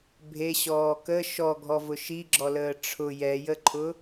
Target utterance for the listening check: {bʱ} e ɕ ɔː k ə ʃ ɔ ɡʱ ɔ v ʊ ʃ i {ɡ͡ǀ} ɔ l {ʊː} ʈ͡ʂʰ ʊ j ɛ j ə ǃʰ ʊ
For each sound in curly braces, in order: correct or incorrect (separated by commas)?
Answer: correct, incorrect, incorrect